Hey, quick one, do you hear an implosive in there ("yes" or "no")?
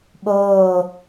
yes